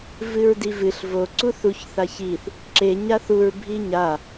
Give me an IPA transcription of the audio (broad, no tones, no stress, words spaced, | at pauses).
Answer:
vɨɹdivɨɬ vo ǀuθuç θaçiθ | ǁe ɲaθuɹ bʱiɲa